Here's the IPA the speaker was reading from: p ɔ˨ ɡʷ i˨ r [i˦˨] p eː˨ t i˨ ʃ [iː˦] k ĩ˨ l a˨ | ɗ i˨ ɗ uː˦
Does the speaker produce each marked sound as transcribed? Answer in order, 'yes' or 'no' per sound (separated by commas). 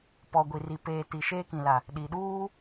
no, no